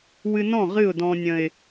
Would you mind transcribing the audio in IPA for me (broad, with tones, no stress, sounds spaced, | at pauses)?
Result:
w ɨ˧ n ɔ̃˥˩ ʁ ɨ˥˩ ʊ̯ d ɔ̃˧ nʲ ə̃˨˩ ɪ̯